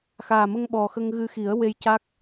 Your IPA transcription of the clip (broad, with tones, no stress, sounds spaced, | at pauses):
x aː˨˩ m ə˧ ŋ ɓ ɔ˨˩ x ə˧ ŋ ɣ ɨ˧ x i˨˩˦ ə̯ w e˧ j c a˦˥ k̚